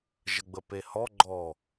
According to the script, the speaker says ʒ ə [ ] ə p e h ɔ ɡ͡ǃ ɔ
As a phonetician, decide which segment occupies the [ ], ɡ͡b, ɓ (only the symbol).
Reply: ɡ͡b